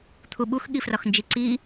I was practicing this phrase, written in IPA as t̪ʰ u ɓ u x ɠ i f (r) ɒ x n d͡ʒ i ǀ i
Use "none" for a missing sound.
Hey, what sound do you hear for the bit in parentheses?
r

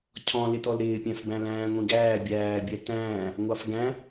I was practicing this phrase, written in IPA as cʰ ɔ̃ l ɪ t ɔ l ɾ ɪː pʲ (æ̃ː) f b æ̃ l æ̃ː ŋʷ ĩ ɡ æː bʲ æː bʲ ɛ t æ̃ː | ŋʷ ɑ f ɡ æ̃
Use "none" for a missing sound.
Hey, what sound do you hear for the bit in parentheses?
æ̃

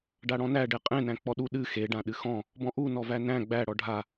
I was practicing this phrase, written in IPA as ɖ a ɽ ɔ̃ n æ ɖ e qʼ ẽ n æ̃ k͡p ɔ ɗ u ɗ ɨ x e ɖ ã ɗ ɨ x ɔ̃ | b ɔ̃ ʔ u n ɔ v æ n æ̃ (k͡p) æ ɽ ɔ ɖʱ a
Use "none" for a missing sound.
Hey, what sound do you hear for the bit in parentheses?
ɡ͡b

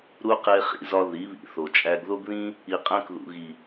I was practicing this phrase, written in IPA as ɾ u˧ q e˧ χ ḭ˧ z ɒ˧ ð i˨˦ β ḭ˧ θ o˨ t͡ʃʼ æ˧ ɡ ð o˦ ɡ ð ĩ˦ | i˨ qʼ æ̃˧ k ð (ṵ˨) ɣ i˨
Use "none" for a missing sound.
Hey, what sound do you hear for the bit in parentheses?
ṵ˨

